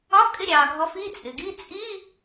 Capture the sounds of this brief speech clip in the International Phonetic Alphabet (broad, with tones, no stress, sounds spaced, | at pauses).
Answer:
ɒ˧˥˧ kʼ ɪ˧˥˧ ɾʲ ɑː˩ ɡʱ ɔ˨˦ f i˧˥˧ t͡sʼ ɪ˩ ɡ i˧˥˧ t͡sʼ i˧˥˧